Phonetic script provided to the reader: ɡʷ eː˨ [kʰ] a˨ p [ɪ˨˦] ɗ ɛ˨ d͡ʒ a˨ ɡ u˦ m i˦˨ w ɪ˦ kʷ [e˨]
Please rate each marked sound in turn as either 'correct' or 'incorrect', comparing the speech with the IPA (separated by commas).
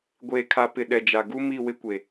correct, incorrect, correct